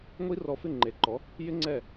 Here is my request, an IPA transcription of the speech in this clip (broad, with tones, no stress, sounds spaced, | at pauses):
ŋʷ i˦ r ɔ˧ f ɪ˦˨ ŋ͡ǃ e˨˦ ǃ ɔ˨˦ | j ɪ˦ ŋ͡ǀ ɛ˦˨